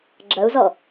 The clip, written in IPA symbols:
ɡ͡ǁ ɐ u̯ z ɔ

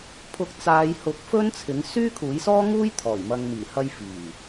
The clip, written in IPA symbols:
pʰ ʊ˧ k̚ t͡s aː˨˧ j h ʊ˨˥ k̚ f ɵ˥ n t͡sʰ ɪ˨˥ ŋ s yː˥ kʰ uː˨˥ j s ɔː˥ ŋ uː˥ j t̪ʰ ɔː˨˩ j m ɐ˨ ŋ m iː˨˩ h ɐ˧ j f iː˨˩

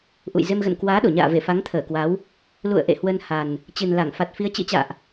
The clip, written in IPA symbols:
ʔ ṵ˧˨ j z e˧ m ɣ ə̰˧˨ n k w aː˨˦ ɗ o˧˩ ɲ a̰ː˧˨ v e˧˩ f a˨˦ ŋ t̪ʰ əː˧˩ k w a˨˦ w | l ṵ˧˨ ə̯ ʔ ḛ˧˨ h w ə˧ n h a˨˩ n | t͡ɕ ɨ˨˩ n l a˧˩ ŋ f a˨˩ t̚ f i˧ ə̯ t͡ɕ ɨ̰˧˥ t͡ɕ a̰ː˧˨ ʔ

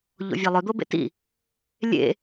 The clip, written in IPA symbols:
ʎ o̰ vʲ a lˠ ɵ d̪ o b ḛ t ḭ | lʲ ḛ

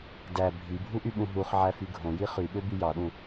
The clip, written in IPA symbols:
d æ bʱ i bʱ u ʔ y ɓ ũ ɦ u χ ʕ æ f y ɡʱ õ j i χ y ɓ ø b y j ɑ ɗ ũ

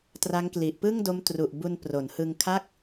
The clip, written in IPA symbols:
t r a˦˥ ŋ k l i˨˩ ʔ p ɯ˥˩ ŋ d o˦˥ m t r u˨˩ ʔ b u˧ n p r o˩˦ n h ɯ˧ ŋ kʰ a˥˩ k̚

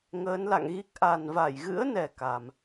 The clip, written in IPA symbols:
ŋ əː˨˦ n l a̰˧˨ ŋ ɣ i˦˥ k̚ ʔ a˨˩ n v a˧˩ j ɣ ɨ̰˧˥ ə̯ n ɛ˨˩ k a˨˩ m

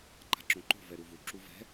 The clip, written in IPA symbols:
ǃ a̤ ǁ õ ǃ o̤ v ɛ ɾ u v u ǁ u v ɛ̤

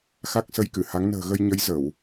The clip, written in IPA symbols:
x a˦˥ k̚ s ə˧ j k ɨ˧˩ h a˨˦ ŋ n ə̤ː˨˩ ɣ ə˧ j ɲ ə˨˦ j z ə˧˩˨ w

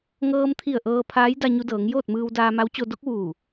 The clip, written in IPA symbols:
ŋ ɤː˧ m t̪ʰ i˧˩ ə̯ ʔ ɤː˧ pʰ aː˧˥ j d a˧ ɲ u˧ d ɤː˩˧ ŋ j oː˥˨ t̚ m ɯː˧ w d aː˧ m a˧˥ w t͡ɕ o˧ d o˧˥ k̚ ʋ uː˧˩

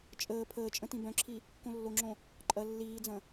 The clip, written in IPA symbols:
t͡ʃʼ əː pʰ əː t͡ʃʼ ə̃ t ĩ b œ̃ ǁʰ i | k õ lː o ŋ͡ǁ õ | ǃʼ ɐ lː iː d͡z ɐ̃

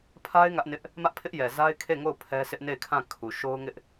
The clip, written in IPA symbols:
pʰ a˦ ɪ̯ ŋ ä˦ ʔ n ɪ˦ ʔ | m ä˦ ʔ pʰ ɪ˦ ʔ j ɛ˨ z a˦ ɪ̯ kʰ e˦˨ ŋ o˦˨ ʊ̯ pʰ ɛ˦ s ɪ˦ ʔ n e˦˨ ɪ̯ kʰ ã˦˨ kʰ u˨ ʃ o˦ ʊ̯ ŋ ɪ˦ ʔ

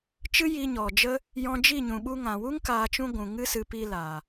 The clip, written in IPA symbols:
t͡ʃ ɨ˦ j i˧ ɲ ɔ˨ d͡ʒ ə˦ | j ɔ̃˧ d͡ʒ i˦˨ ɲ ũ˨ ɓ u˧ ŋ ã˨ w u˦ ŋ k aː˧ t͡ʃ ũ˦ ɡʷ ũ˨ ŋ ɨ˦ s ɨ˨˦ p i˧ l aː˨

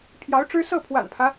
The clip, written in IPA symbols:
pʰ j ɑ˧˥ ʊ̯ ʈ͡ʂ ɻ̩˥ s ɤ˥˩ pʰ w a̰˨˩ n pʰ ä˦

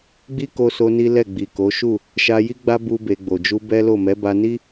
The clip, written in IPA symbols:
ɡ͡b i˦ k o˧ s o˧ n i˦ l ɛ˦˨ ɡ͡b i˨ k o˨˦ ʃ u˦˨ | ʃ a˧ j i˦ ɡ͡b a˦ b u˦ b e˧ ɡ͡b o˨ d͡ʒ u˧ b ɛ˦ l o˦˨ m ɛ˨˦ b a˧ n i˦

